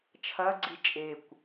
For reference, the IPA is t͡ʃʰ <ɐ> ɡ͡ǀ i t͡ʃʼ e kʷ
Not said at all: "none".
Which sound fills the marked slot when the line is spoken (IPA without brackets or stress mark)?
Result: ɐ